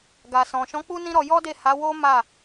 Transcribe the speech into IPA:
ɡa˨sɔ̃˨ʃɔ̃˨˦ k͡pu˦nĩ˦ɾɔ˧ jɔ˦de˦˨ ha˨˦wo˦ ma˦˨

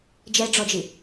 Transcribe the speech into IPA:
d͡ʒɛɖ͡ʐɔd͡ʒi

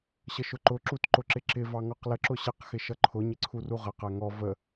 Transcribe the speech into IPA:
ɕəʃʊǃʊ ǁutǃʊǁɪǁɪ vɑŋɔqlə ǁʊɕɪq xɪʃʌǃʰʊ ɲɪǀʰuruʁə qæŋɔ və

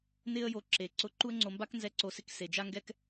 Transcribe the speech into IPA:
nɪ˦ə̯jo˧ ǁe˨ ǀʊ˧ ǃu˦ə̯ŋ͡ǀo˧mba˦k nzɛ˧ǀo˨sɪ˧k se˨d͡ʒa˦ŋɡɛ˦k

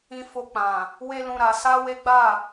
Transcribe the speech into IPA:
ĩ˧fo˧k͡pã˨ | we˦lũ˧ɾa˧ sa˦we˦ɡ͡ba˦˨

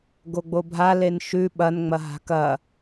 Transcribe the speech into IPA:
ɡoɡ͡bobʱa lenʃʉ ɓɐn ŋ͡mɐɦa̤kɐ

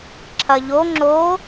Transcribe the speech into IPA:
ǁʰɐ ʎo ŋ͡ǁo

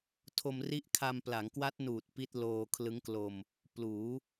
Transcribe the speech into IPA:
tʰo˧mri˦˥ʔkʰa˧mpla˩˦ŋ kwa˦˥t̚nuː˨˩t̚ pi˦˥t̚loː˧kʰlɯ˦˥ŋklo˧m | pluː˩˦

